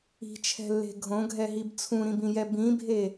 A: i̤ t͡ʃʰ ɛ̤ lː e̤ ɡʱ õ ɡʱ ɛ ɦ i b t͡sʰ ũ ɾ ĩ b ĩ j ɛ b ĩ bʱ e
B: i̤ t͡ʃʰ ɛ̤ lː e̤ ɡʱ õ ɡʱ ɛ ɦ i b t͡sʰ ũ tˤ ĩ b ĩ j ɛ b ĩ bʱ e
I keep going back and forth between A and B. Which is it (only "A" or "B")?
A